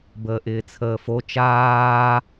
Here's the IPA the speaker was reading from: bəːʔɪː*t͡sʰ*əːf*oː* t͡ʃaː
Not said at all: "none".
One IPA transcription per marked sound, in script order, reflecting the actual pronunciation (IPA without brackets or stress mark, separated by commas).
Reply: t͡sʰ, o